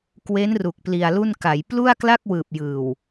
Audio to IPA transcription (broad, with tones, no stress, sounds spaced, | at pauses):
k w e˦˥ n r u˨˩ k̚ p l i˧ a̯ l u˥˩ n k a˩˦ j p l u˥˩ a̯ k l a˥˩ k̚ w ɯː˨˩ p̚ j ɯː˨˩ w